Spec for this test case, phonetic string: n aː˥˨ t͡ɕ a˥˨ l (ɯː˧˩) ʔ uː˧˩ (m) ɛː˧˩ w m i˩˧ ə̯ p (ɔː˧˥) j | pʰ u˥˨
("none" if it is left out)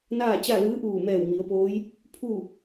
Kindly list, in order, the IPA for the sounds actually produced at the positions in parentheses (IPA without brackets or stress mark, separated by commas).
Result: ɯː˧˥, m, oː˧˥